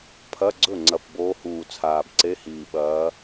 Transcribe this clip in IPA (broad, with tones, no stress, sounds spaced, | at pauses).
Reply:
pʰ ɐ˧˥˧ ɡ͡ǀ ɵ˥˩ ŋ͡ǀ ɐ˨˩ p b oː˧˥ h uː˨˩ t͡sʰ aː˨˩ b ǀ e˧˥˧ h iː˨˩ ɓ ɐː˧˥